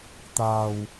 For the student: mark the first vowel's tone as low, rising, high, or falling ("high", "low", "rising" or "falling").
low